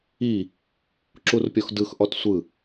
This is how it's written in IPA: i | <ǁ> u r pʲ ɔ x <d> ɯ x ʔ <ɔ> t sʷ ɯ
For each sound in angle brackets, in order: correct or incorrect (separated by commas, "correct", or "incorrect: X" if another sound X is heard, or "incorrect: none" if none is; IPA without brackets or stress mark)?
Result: correct, correct, correct